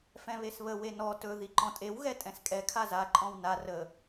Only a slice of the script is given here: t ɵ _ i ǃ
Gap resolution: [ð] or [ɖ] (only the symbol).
ð